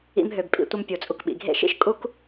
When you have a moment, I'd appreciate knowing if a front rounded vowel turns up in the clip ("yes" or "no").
yes